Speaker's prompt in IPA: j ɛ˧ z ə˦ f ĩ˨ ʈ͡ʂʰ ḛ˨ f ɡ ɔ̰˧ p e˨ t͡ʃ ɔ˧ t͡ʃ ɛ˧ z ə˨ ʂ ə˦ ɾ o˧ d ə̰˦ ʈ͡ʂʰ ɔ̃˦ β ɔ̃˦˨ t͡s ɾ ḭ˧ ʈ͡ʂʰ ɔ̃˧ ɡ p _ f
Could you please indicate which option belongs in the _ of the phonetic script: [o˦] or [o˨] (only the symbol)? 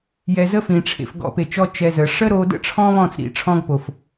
o˨